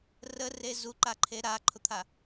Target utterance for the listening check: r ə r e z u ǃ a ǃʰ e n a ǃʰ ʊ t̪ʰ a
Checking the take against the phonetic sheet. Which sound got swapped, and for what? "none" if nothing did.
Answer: n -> ɾ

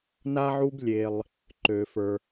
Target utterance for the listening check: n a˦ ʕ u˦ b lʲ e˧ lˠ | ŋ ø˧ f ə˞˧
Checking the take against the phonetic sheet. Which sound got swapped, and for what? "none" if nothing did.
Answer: ŋ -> ǃ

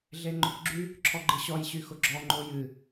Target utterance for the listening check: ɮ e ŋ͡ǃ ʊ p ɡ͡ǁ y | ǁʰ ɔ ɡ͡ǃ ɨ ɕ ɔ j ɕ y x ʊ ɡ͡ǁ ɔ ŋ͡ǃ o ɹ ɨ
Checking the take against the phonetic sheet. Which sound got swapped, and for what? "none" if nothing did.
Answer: ɹ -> j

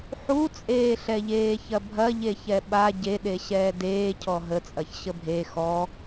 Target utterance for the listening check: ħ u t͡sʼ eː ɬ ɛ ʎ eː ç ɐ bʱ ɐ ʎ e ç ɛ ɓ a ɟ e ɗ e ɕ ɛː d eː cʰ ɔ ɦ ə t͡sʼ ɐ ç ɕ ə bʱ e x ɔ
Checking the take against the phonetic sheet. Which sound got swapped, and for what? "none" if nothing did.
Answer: none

